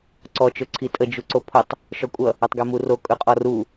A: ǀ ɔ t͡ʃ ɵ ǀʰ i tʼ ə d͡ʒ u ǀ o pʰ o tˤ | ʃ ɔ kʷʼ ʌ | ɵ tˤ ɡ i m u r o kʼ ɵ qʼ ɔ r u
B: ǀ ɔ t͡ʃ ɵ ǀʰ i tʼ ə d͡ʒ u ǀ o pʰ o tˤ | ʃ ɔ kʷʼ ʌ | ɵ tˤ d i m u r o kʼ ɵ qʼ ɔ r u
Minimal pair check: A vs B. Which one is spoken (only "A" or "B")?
A